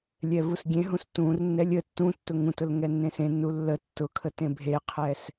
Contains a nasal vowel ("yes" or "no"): yes